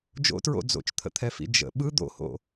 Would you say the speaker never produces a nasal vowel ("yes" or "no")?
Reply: yes